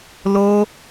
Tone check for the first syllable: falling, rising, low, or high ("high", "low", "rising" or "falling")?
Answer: high